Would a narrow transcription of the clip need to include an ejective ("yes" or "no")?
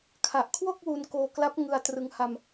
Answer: no